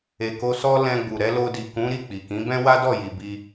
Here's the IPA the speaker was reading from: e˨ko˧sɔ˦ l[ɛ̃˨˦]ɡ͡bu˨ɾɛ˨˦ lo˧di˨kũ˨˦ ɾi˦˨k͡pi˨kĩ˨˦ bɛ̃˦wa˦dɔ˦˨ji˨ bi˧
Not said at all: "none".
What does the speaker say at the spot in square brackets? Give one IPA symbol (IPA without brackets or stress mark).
ɛ̃˧